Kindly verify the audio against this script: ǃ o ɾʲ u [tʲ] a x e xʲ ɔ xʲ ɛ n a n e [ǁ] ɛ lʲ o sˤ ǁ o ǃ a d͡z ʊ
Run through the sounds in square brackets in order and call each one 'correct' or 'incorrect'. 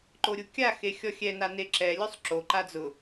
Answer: incorrect: kʲ, correct

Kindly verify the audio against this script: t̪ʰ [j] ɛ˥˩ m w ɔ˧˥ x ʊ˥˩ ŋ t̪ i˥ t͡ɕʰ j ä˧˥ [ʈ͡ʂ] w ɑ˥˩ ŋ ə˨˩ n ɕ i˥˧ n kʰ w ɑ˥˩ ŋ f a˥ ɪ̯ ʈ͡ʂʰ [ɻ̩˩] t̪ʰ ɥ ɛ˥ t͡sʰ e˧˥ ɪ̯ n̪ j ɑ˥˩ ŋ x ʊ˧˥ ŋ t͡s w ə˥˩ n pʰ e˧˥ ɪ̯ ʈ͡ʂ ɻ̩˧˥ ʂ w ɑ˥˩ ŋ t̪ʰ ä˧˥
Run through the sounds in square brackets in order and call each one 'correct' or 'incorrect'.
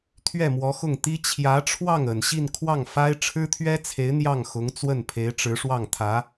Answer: incorrect: ɥ, incorrect: ʈ͡ʂʰ, incorrect: ɻ̩˥

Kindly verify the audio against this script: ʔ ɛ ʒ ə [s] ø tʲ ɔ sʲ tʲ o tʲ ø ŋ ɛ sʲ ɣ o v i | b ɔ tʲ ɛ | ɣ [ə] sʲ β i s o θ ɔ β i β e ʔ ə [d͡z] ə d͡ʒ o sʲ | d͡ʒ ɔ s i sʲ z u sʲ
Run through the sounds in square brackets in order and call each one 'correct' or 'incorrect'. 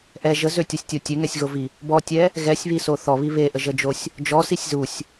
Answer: incorrect: z, incorrect: ɛ, incorrect: ʒ

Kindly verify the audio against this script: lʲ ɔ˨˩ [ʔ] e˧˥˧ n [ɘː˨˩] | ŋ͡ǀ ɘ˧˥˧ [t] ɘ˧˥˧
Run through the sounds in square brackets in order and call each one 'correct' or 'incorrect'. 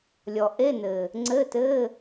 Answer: correct, correct, correct

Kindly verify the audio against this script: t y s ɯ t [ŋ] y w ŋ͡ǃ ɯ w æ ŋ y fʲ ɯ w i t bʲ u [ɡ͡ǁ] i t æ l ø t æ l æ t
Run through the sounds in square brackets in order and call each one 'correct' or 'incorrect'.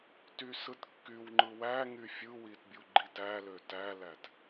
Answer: incorrect: kː, incorrect: ɡ͡ǃ

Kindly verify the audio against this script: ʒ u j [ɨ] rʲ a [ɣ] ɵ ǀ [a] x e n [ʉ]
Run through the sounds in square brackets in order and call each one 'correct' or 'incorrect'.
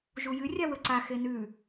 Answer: correct, incorrect: w, correct, correct

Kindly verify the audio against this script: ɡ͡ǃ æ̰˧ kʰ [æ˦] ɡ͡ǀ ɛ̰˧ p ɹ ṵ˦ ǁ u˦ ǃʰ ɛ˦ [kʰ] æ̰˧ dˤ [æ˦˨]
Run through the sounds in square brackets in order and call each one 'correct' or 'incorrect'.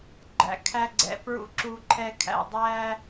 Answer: correct, correct, incorrect: æ˦

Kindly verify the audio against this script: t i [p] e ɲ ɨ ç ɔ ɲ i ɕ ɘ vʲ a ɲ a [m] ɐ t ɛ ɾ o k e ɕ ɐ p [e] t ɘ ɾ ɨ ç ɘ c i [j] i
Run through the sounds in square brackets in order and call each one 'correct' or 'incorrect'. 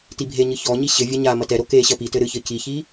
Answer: incorrect: bʱ, correct, incorrect: i, incorrect: ç

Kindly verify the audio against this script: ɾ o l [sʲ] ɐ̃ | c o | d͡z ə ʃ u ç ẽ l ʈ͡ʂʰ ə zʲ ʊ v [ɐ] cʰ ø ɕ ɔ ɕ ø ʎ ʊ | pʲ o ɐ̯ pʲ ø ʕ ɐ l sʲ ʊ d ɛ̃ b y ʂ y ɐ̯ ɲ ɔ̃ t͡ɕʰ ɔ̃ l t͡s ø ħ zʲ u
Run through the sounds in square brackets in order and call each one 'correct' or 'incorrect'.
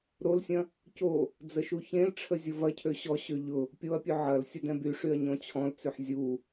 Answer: correct, correct

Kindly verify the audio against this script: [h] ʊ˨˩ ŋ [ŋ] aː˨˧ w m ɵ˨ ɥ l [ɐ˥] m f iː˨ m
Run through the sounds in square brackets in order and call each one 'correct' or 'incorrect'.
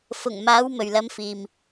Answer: incorrect: f, incorrect: m, correct

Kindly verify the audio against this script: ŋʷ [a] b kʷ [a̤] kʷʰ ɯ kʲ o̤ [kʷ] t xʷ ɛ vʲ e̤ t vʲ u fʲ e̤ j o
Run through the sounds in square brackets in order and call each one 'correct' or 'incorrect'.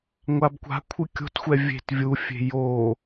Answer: correct, correct, incorrect: none

